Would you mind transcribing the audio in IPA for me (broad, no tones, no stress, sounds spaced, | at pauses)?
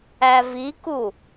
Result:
æ v i k u